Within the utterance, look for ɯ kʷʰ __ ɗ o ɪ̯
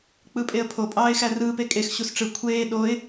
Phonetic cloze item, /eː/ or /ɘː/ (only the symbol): eː